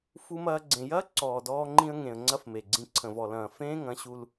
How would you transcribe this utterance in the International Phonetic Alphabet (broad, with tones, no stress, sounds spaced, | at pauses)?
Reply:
f u˧ m ɐː˧ ɡ͡ǀ ẽ˨ j ɐː˦ ǀ ɔː˨ d ɔː˧ ŋ͡ǃ ĩ˧ ə̯ ŋ ẽ˨ ə̯ ŋ͡ǀ ɐ˦ f m e˨ ɡ͡ǀ ĩ˧ ǀʰ ə̃˨ v ɔ˨ l ɐ̃ː˨ f ẽː˦ ŋ ɐ̃˨˦ ɕ u˧ l